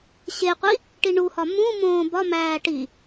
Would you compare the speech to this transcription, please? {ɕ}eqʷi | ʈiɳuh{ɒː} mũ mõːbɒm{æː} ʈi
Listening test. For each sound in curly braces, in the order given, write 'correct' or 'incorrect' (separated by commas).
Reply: correct, incorrect, correct